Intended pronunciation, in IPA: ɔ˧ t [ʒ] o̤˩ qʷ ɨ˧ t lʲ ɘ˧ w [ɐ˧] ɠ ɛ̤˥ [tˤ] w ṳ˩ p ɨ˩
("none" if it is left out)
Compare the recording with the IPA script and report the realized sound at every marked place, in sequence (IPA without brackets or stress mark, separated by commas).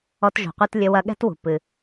ʒ, ɐ˧, t